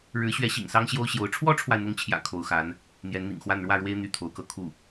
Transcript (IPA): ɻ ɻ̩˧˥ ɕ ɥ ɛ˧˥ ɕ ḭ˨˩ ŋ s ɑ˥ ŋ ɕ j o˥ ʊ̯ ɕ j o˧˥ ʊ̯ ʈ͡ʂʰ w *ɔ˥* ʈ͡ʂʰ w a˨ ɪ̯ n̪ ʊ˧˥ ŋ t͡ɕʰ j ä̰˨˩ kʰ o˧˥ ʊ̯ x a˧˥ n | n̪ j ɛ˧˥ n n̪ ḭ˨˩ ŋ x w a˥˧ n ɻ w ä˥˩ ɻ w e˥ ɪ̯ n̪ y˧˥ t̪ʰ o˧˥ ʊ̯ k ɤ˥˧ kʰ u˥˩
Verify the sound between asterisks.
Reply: correct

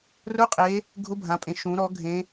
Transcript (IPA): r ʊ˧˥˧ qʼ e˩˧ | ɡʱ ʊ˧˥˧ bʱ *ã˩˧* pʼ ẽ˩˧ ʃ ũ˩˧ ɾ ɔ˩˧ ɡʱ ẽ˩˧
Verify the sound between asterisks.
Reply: correct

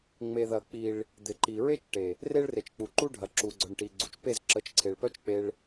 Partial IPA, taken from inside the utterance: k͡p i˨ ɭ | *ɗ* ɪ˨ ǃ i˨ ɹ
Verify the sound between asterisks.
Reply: incorrect: d̪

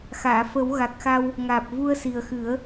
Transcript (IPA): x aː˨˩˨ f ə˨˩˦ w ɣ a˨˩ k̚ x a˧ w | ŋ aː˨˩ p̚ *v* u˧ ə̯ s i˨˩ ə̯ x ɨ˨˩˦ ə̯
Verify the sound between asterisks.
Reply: correct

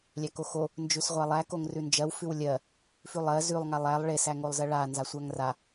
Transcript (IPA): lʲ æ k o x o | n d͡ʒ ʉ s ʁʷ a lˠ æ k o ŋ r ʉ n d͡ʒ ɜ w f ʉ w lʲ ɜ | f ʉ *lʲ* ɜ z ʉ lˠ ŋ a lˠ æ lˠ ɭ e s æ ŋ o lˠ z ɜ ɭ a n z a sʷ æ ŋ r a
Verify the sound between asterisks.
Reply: incorrect: lˠ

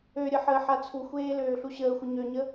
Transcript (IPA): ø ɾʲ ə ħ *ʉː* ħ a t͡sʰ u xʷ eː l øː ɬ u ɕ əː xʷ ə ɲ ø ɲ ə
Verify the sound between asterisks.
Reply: incorrect: əː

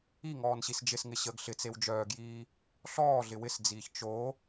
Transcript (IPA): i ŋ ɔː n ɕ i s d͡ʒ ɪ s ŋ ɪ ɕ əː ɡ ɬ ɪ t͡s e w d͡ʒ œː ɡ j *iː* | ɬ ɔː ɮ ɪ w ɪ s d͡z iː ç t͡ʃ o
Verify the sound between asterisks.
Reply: correct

